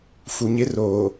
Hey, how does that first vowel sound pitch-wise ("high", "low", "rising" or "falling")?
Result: low